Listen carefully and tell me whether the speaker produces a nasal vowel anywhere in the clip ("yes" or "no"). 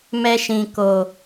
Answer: yes